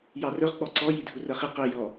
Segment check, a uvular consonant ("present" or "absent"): present